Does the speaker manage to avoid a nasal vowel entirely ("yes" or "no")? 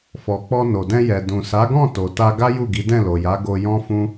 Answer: no